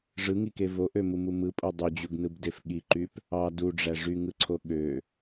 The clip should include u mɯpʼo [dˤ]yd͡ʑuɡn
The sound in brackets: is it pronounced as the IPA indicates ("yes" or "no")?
yes